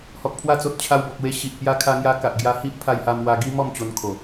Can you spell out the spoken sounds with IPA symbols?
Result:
h ɔ˨ k̚ pʰ w a˧ t͡s o˨ t̚ t͡ɕʰ a˧ w b ɔ˨ k̚ w e˧ ɕ i˨ ʔ p j a˦ kʰ a˧ ŋ j a˧ k a˨ ʔ ɡ j a˧ h i˦ ʔ pʰ a˧ j h a˧ m w a˧ ɡ i˦ m ɔ˥˧ m t͡ɕ o˧ n kʰ o˨˩

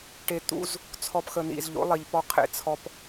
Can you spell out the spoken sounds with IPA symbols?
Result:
ʈ e˨ t̪ ṵ˦ z | t͡sʰ ɔ˨ p x ə˨ n ḭ˨ z ʎ o̰˨˦ lˠ i˨ ʎ p ɔ˦ qʰ ḛ˦˨ t͡sʰ ɔ˦ p

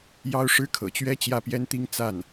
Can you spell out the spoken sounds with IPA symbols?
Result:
j ɑ˥ ʊ̯ ʂ ɻ̩˥ kʰ ɤ̰˨˩ t͡ɕ ɥ ɛ˥ t͡ɕ j ä˥˩ p j ɛ˥ n t̪ i˥ ŋ t͡s a˥˩ n

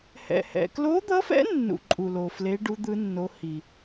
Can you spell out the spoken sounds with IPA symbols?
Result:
h ɛ̰˨ h ɛ̰˨ k l o˧˥ d̪ ʌ˧˥ f ɛ̰˧˥ nː ṵ˨ ǃʼ u˨ l o˨ f l e˧˥ ɖ u˧˥ d̪ ɯ˧˥ nː o˧˥ h i˨

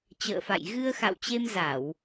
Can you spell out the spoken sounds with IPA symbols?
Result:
t͡ɕ ə̰ː˧˨ f a̰˧˨ j ɣ ɨ˧ ə̯ x a̰˧˨ w t͡ɕ e˧ m z a˧˩˨ w

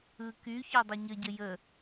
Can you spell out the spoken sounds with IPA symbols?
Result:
ɯ k y ç ɔ dˤ ɘ ɲ ə ɟ ə j ə

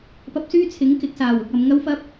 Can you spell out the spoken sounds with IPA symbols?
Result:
p ɐ˧ p̚ s yː˥ t͡sʰ ɪ˨˥ ŋ k ɪ˨˥ k̚ s aː˨˩ w ʊ˨ k̚ ɐ˨ m ŋ ɐ˥ w f ɐ˥ p̚

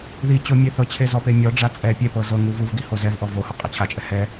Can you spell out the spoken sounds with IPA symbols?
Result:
ð i t͡ɕ o mʲ e θ ɤ t͡ɕʰ e z ɔ p e mʲ ɔ ɖ͡ʐ a t͡sʼ ɛ pʲ ɛ p ɤ z ɤ ŋ u v u v ɡ i h o z ɛ v ʔ ɔ v o h ɔ qʼ a t͡ɕʰ a t͡ʃʼ ɛ h ɛ

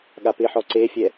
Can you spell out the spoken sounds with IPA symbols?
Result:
ɠ a p ɪ ħ ɔ ǀ e fʲ ɛ

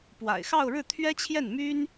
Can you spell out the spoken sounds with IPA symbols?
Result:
p w a̰˨˩ ɪ̯ x ɑ˥˧ ʊ̯ ɻ ɻ̩˥˩ t̪ʰ ɥ ɛ˥ t͡ɕʰ j ɛ˥˩ n m y˥ n

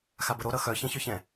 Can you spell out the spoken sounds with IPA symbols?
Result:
x a b ə ɾ o ɾ ʌ x œ ç ɛ̃ ç œ ç ɛ̃

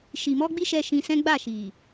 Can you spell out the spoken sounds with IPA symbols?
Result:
ʃ i˨ m ɔ˧ ɡ͡b i˧ ʃ ɛ˧ ʃ ĩ˧ s ɛ̃˦ ɡ͡b a˦˨ ʃ i˨

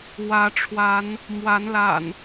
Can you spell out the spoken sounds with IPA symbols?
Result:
w ä˨˦ ʈ͡ʂʰ w a˨˦ n | m w a˨˦ n l a̰˨˩ n

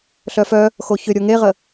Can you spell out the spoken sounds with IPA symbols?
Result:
ɬ œ f œ | x o ç ʏ ɾʲ o ŋ e ʁ ə

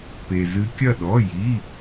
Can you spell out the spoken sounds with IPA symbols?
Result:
p e˧ z ɨ˦˥ kʲ ɐ˥˧ ɗ ɔ˧˥˧ j i˧˥˧

